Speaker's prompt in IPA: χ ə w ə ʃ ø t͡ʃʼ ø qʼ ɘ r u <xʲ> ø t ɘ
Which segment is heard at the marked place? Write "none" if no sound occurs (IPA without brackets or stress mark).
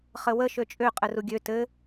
ɡʲ